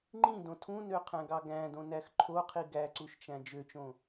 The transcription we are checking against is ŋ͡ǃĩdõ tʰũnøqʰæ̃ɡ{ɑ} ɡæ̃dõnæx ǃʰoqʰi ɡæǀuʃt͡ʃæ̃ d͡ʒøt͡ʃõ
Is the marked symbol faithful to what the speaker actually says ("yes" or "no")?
yes